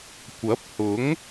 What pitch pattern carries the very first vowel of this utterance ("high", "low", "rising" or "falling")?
rising